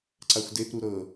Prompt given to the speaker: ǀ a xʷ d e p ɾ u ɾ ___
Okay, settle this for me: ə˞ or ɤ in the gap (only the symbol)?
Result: ɤ